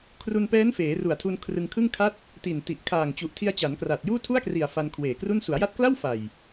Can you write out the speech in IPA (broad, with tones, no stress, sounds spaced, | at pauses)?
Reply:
kʰ r u˧ n p ɛː˦˥ n f eː˩˦ r u˨˩ a̯ tʰ u˧ n kʰ r ɯ˧ ŋ kʰ ɯ˥˩ ŋ kʰ a˥˩ t̚ | t i˨˩ n t i˨˩ ʔ kʰ aː˨˩ ŋ t͡ɕ u˨˩ ʔ tʰ i˧ a̯ t͡ɕ a˩˦ n k r aː˨˩ t̚ j uː˥˩ tʰ u˥˩ a̯ k r i˨˩ a̯ f a˧ n kʰ w eː˨˩ k r u˥˩ n s u˩˦ a̯ j a˦˥ t̚ k l a˥˩ w f a˨˩ j